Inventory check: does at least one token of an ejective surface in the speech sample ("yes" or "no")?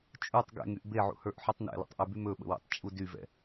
yes